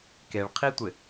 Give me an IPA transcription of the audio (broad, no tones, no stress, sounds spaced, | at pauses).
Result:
k e ɭ qʰ i tʷ ɪ